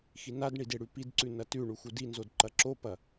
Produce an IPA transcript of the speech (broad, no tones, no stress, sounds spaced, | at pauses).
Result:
x i n a d ɳ i d e ɽ ʉ p i d ǀ ʉ n ɐ t ʉ ɳ u x u d i n z o d ǃ ɐ ǁ o p ɐ